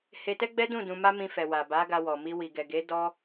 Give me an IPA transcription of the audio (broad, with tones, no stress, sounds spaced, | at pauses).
h e˧ t ɛ˦ ɡ͡b ɛ˦ d ũ˦˨ d ũ˧ m a˦ m ĩ˧ f ɛ˨ w a˨ b a˨˦ ɡ a˧ w ɔ˨ m i˧ w i˨ ɡ ɛ˨ ɡ e˨˦ d ɔ˦